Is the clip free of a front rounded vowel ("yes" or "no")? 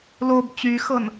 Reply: no